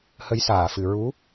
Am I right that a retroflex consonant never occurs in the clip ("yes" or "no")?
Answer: yes